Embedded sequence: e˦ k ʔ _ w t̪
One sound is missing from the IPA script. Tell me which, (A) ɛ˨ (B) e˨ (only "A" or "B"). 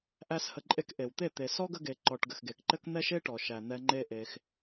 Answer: B